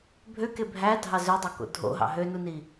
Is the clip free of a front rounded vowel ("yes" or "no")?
no